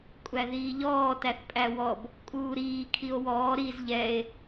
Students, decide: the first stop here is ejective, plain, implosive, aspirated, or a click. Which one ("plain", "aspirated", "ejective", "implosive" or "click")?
ejective